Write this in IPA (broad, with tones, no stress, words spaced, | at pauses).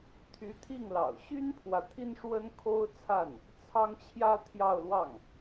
t̪ʰy˧˥t̪ʰi˥˩ŋlɑ̰˨˩ʊ̯ ɕy˥npʰwä˨ t̪ʰi˥nʂwə˥nkʰo˥ʊ̯t͡sʰa˥˩n | t͡sʰɑ˥ŋt͡ɕʰjä˥ t̪ʰjɑ˥˧ʊ̯lwɑ˥˩ŋ